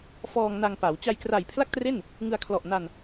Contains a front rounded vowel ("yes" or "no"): no